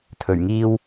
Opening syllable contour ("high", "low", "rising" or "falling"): low